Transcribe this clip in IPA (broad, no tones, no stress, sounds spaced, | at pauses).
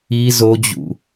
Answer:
i z o d͡ʑ ṵ